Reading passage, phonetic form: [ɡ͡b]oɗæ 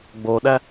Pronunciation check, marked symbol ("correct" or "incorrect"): correct